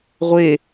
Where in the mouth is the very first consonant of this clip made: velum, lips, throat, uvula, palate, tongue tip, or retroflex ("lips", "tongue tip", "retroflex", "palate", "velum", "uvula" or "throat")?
uvula